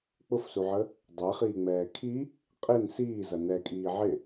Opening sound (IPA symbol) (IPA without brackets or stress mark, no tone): k͡p